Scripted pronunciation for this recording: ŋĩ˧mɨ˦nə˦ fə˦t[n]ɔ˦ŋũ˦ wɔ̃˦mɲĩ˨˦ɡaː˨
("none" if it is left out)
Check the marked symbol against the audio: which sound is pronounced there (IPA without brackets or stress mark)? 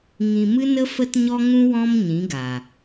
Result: ɲ